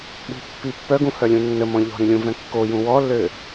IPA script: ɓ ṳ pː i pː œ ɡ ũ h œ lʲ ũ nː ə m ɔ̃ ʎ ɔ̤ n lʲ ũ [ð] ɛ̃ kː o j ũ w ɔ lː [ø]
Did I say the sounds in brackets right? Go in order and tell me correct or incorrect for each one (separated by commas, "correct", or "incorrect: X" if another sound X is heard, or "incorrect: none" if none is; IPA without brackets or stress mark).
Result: incorrect: v, correct